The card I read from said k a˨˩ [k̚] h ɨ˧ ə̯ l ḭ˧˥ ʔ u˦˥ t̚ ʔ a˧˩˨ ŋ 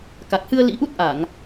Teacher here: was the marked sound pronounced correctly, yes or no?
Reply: yes